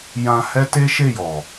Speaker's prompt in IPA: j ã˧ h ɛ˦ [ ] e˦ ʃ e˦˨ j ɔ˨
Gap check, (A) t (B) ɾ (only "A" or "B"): A